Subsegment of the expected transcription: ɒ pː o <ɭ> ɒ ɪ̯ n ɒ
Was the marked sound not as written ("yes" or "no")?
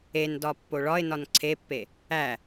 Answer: no